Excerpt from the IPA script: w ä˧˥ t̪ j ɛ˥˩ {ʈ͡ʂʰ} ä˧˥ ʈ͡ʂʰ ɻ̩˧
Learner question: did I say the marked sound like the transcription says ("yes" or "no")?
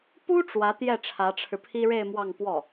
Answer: yes